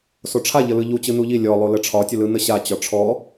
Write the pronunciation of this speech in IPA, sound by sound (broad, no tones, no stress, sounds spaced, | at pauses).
s o ʈ͡ʂʰ a ʎ ə l ɯ ʎ u t͡ɕ ɯ n u ʎ i lʲ ɔ lˠ o l ə ʈ͡ʂʰ ɒ tʲ ə l ɯ n ə ɕ a t͡ɕ ɒ ʈ͡ʂʰ ɔ